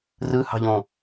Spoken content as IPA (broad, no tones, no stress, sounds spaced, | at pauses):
r ɯ h ɑ̤ ʎ õ